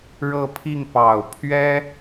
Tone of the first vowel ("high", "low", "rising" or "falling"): falling